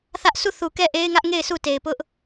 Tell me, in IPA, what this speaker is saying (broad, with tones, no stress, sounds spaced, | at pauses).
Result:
θ ä˦ ʔ sʰ u˦˨ θ u˨ k ɛ˦˨ ʔ e˦ ɪ̯ ŋ ä˦ ʔ ŋ e˦˨ ɪ̯ sʰ u˦˨ t e˨ ɪ̯ p ʊ˦ ʔ